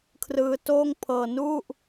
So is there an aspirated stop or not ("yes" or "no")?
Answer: yes